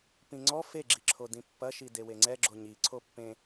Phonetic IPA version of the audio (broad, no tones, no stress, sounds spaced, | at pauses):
p ĩ ŋ͡ǀ ɔ f e ɡ͡ǁ i ǁʰ o d ĩ pː ɐ ʃ i d e w e ŋ͡ǀ ɛ ɡ͡ǁ o ɲ i ǀʰ o pː ẽ